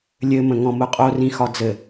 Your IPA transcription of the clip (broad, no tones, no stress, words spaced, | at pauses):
lʲɘmə̃ŋɔ̃ mʊqʼorĩ xɒd͡zɘ